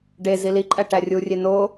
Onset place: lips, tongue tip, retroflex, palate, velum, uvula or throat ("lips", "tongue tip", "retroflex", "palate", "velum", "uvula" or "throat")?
retroflex